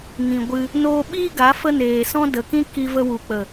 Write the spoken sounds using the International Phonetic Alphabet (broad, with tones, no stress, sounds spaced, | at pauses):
ŋ ĩ˨ ɡʷ ɨ˧ | n oː˧ ɓ iː˦ ɡ a˨˦ f ə˦ n eː˨ s ɔ̃˦ d ə˨ k ĩ˦ k i˧ v ə˧ w u˨ k͡p ə˨